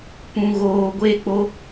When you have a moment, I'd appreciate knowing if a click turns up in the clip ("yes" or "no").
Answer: no